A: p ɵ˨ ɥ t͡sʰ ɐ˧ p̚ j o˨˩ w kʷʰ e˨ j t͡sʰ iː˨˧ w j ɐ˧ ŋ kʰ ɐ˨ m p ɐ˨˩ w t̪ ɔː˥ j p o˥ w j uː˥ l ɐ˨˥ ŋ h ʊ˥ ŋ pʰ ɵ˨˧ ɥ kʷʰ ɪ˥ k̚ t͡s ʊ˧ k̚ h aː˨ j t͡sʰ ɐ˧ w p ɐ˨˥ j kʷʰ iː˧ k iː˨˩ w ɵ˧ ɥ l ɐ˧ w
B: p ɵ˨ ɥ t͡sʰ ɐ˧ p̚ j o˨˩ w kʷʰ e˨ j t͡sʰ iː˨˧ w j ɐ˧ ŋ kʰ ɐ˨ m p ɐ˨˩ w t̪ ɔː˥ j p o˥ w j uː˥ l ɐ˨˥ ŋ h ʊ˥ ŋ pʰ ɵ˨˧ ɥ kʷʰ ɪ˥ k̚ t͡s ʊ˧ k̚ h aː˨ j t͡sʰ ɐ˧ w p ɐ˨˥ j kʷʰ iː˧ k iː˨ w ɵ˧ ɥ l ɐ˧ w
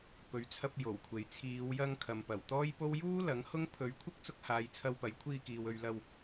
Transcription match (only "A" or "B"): B